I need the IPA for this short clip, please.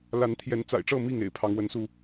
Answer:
l a˨˦ n t̪ʰ j ɛ˨˦ n t͡s a̰˨˩ ɪ̯ ʈ͡ʂ ɤ˥˨ m i˥˨ ŋ ḛ˨˩ ɪ̯ pʰ ɑ˨˦ ŋ w ə˨˦ n s u˧

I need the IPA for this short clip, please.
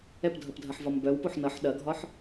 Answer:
ɛ p dʱ ʌ p dʱ ɐ ħ v ɒ m b œ w p o ħ n ʌ ħ ɗ ɐ ɡʱ ɒ ħ

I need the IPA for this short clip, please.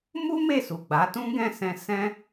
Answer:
m u˦ m e˦˨ s u˨ ɡ͡b a˨˦ t ũ˦ ɡ ɛ̃˦˨ s ɛ̃˧ s ɛ̃˦

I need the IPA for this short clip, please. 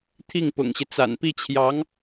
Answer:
t̪ʰ i˥˩ ŋ p ʊ̰˨˩ ŋ ɕ i˦ t͡s a̰˨˩ n p i˥˩ t͡ɕʰ j ɑ˧˥ ŋ

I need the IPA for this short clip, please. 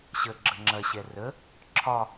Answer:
ɕ ə ɡ͡ǁ ə ŋ͡ǁ ɐ ɕ ɛ r ə | ǁʰ ɒ

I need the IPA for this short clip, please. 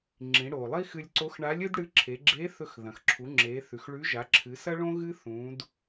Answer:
ŋ͡ǁ ĩ˩˧ ɽ o˩ lˠ i˥ x ɨ˧ lʲ ǀ o˧˥ x ɳ a˧˥ lʲ ɨ˥ d ɽ ɨ˧˥ ǁʰ e˩˧ ɡ͡ǁ e˧˥ θ ɵ˧ x ð ɐ̃˩ x ǁʰ u˩˧ ŋ͡ǁ e˩˧ θ ʉ˩ x ɭ ʉ˧˥ ʒ a˩˧ ǁʰ ɨ˩˧ s ɐ˥ ɭ õ˥ ɣ ɨ˥ θ ũ˩˧ d

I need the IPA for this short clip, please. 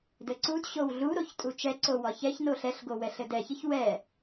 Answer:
d ɘ ǀ u d ɕ o w ɮ u ɾ o ç tʼ u t͡ʃ ɛ ǀ o w ɒ ç ɛ ç n o ɬ ɛ ɬ ɡ o w ɛ ɬ ɘ d ɛ ç ɘ ç w ɛ

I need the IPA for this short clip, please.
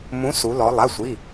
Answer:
m ũ˩˧ s u˩˧ l ɔ˩˧ lˠ a˩˧˩ sʷ i˩˧˩

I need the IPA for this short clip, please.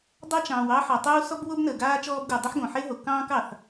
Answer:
dˤ ɑ˥ t͡ʃ ɑ̃ː˩ w ɑ˥ ħ ɔ˩ tˤ uː˥ s ɔ˥ b w o˥ b n əː˩ ɡ aː˥ t͡ʃ ɔː˥ b ɡ u˩ dˤ ə˥ ħ ɡ õ˩ ħ e˥ ɦ o˩ k ɑ̃ː˥ k ɑ˩ θ

